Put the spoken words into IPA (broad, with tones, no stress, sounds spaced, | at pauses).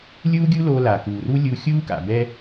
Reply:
lʲ uː˥ ɡʲ u˥ l o˧ l a˩ k uː˩ r u˥ lʲ u˧ xʲ uː˥ k a̰˩ b ɛ˧